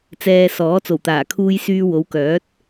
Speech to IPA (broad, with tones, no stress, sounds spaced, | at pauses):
t͡s ɛː˨ s ɔː˨˥ t͡s o˨˩ w t̪ aː˨˩ kʰ uː˧ j s yː˧ w o˨˧ w k œː˨˥ t̚